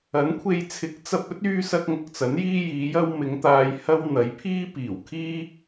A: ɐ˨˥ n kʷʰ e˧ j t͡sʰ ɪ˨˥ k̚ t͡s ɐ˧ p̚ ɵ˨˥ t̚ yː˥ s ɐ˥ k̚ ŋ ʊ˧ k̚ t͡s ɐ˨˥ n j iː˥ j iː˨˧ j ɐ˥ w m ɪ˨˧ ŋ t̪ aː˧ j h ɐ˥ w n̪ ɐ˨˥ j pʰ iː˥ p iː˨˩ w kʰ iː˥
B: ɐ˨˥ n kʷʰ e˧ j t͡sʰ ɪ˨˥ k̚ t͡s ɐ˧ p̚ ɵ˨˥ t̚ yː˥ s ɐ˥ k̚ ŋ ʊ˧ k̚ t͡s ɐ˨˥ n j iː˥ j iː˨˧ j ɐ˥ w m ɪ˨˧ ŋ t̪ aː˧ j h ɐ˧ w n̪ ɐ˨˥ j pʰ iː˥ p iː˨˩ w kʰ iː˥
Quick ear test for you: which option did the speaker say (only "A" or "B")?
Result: A